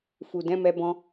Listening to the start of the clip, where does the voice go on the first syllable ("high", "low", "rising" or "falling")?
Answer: low